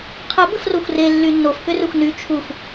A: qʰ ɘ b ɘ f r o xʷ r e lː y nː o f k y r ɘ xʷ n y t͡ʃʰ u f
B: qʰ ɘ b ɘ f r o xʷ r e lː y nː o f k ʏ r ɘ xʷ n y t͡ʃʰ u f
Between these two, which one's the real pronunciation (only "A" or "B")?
B